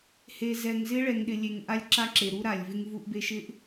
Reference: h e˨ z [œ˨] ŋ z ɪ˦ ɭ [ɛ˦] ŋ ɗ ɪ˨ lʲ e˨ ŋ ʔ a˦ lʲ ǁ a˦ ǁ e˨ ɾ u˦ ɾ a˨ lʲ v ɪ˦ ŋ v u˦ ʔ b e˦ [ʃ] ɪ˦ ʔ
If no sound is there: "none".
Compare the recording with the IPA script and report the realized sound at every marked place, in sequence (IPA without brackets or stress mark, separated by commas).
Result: ɛ˨, ɛ˨, ʃ